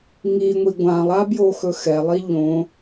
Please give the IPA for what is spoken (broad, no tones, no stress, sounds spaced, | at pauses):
ŋ i ŋʷ i ɡʷ ã lˠ a b j o x ɵ x ɛ lˠ i ʎ õ